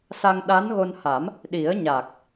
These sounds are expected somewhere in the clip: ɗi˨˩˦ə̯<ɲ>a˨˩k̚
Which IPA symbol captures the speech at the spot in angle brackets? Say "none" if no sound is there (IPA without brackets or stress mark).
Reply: ɲ